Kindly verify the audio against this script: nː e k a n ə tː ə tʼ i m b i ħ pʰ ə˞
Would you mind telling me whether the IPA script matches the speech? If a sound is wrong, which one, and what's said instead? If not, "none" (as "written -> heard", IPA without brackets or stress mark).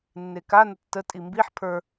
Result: none